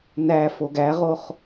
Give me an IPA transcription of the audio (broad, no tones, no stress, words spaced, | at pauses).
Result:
næ foɡæʁoχ